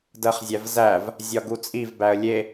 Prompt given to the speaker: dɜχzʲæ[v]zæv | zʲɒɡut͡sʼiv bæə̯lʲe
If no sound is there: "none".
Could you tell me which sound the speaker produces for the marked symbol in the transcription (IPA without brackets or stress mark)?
v